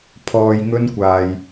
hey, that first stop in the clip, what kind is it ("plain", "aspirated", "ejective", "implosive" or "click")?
aspirated